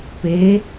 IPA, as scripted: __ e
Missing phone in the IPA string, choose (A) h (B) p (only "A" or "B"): B